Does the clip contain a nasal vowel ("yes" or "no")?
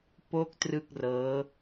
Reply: no